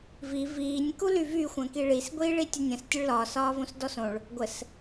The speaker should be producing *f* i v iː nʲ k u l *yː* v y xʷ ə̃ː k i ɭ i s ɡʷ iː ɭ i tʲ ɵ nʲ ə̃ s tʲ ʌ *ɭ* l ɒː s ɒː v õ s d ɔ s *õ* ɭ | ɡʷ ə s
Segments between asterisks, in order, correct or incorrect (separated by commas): incorrect, incorrect, correct, correct